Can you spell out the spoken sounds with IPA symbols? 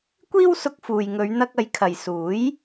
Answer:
kʷ iː˥ w s ʊ˧ k̚ f uː˨ j ŋ ɵ˨˧ ɥ n̪ ɐ˧ k̚ ɐ˨˧ j kʰ ɐ˨ j s uː˨˥ j

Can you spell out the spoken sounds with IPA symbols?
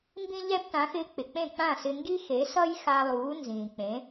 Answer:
m b ĩ˧ ʎ ɛ˧ b t ã˩˥ x ɪː˧ k͡p ɪ˩ k͡p ẽ˥˩ k͡p ã˥˩ s ɪ˧ ŋ ɡ i˥ x e˩˥ s ʌ˥ j x a˧ lˠ uː˩˥ n z ĩː˩ k͡p ẽ˩˥

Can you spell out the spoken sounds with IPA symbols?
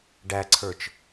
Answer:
ɖ æ ǀʰ ə˞ t͡ʃ

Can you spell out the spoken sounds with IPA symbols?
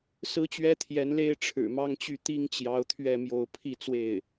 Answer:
s ɹ̩˥ t͡ɕ ɥ ɛ˥ t̪ʰ j ɛ˧˥ n l e˥ ɪ̯ ʈ͡ʂʰ ɻ̩˨˩ m ɑ˥ ŋ t͡ɕ y˥˩ t̪ i˥ ŋ t͡ɕ j ɑ˧˥ ʊ̯ t̪ʰ ɥ ɛ˥˧ m j o˥˧ ʊ̯ pʰ i˥˧ t͡s w e˥˩ ɪ̯

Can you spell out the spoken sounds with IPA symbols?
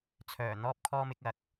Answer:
t͡sʰ œː˨˩ n̪ ɔː˧ p̚ kʰ ɔː˧ m ɪ˧ k̚ ɐ˨˥ k̚

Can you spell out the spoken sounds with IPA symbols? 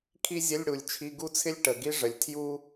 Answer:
kʰ i˥ zʲ ə˧˥˧ lʲ ɽ u˨˩ lʲ t͡ʃʰ i˧˥˧ ɡ u˥ t͡sʰ ɪ˥ lʲ ʈ ə˨˩ ɡ i˥ ʐ ə˨˩ lʲ tʰ j u˥

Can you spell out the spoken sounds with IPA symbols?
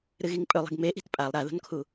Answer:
ɾ ɨ ɣ i ŋ pʼ ɵ lˠ i̤ ɡ m e ʔ i̤ t pʼ a lˠ ɾ a ð o̤ n kʰ u

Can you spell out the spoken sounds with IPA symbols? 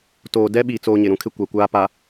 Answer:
t oː˨ d ɛ˦ ɓ i˨ t͡s oː˦ ɲ ɪ˨ ɾ ũ˦ kʰ ɪ˦ kʷ a˨ kʷ aː˦ p a˨

